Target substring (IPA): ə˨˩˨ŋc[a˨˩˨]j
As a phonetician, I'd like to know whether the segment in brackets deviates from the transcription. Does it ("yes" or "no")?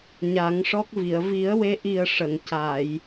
no